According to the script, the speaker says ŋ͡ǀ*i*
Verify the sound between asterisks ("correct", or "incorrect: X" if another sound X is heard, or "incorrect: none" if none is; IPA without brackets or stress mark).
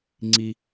correct